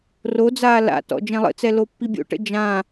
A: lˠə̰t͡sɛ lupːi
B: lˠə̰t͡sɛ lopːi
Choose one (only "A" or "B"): B